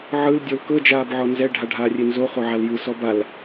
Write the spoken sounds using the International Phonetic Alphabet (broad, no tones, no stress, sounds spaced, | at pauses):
ʕ ɯ l dʲ o l k ɤ d͡ʒ aː b ʕ ɔ n z ɛ ɖʱ a ɖʱ aː rʲ e n z o χ o ʕ a l j ɯ s ɔ b a l